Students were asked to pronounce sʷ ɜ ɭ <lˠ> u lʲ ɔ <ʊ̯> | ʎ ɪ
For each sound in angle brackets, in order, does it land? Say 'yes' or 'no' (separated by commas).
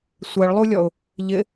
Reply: yes, yes